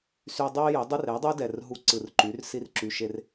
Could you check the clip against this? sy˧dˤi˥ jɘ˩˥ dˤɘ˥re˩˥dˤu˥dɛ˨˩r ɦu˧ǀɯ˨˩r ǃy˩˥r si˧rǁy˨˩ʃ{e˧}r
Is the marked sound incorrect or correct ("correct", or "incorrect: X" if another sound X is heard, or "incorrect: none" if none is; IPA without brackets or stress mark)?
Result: correct